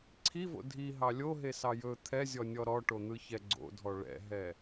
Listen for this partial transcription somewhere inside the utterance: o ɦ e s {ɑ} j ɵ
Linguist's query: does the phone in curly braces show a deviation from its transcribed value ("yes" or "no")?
no